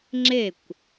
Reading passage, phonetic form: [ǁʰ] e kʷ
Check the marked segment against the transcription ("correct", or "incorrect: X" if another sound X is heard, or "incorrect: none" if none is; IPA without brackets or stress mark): incorrect: ŋ͡ǁ